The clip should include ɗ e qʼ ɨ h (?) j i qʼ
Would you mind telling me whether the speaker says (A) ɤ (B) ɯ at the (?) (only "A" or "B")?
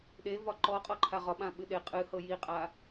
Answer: A